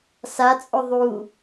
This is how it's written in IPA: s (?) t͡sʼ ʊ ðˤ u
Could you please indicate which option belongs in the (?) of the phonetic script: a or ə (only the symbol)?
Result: a